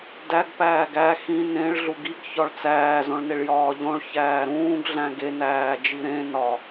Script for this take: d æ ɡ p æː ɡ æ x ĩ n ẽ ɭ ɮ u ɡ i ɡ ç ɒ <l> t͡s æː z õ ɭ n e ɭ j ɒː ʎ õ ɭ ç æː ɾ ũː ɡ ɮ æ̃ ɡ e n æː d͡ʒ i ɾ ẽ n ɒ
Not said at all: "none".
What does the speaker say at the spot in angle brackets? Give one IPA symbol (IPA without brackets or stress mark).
ɭ